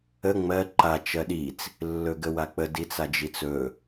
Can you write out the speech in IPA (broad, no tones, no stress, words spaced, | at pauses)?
ə ŋ͡mɜ ǃa t͡ʃɜɗit͡s | lːɵɡəwak͡pə dit͡sad͡ʒit͡sɵ